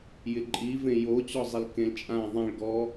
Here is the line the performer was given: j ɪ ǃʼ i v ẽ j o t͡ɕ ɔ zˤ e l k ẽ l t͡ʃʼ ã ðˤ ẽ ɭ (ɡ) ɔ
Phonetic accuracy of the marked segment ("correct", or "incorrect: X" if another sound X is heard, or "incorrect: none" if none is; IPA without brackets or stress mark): correct